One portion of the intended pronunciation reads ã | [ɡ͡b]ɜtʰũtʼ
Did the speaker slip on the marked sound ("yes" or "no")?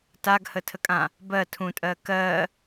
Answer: yes